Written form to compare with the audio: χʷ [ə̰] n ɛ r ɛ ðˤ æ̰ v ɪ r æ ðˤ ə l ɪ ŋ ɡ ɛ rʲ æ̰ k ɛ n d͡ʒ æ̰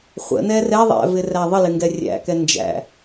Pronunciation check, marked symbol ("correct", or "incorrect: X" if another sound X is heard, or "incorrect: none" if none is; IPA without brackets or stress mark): correct